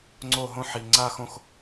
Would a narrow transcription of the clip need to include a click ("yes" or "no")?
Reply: yes